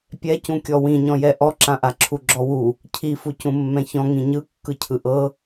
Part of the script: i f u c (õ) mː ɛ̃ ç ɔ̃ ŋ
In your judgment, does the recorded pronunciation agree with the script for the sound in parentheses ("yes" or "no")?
no